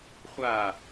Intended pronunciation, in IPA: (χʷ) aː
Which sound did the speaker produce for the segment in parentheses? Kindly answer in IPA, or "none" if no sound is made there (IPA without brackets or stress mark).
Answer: χʷ